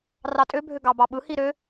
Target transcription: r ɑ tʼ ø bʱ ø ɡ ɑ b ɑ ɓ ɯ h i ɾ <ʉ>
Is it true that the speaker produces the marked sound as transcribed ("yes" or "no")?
no